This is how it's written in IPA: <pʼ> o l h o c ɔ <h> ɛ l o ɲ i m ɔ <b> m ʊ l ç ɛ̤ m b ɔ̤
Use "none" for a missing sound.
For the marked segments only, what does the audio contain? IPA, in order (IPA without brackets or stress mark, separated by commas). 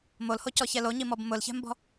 m, ç, b